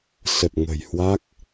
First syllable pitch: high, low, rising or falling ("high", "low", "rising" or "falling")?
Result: low